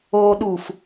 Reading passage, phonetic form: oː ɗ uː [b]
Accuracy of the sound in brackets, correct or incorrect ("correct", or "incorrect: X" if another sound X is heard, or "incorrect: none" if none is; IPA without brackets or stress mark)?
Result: incorrect: f